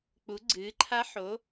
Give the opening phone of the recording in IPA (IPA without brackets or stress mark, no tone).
k͡p